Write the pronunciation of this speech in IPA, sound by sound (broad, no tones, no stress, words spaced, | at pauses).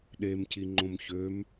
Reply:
ɗemciŋ͡ǃõm çøm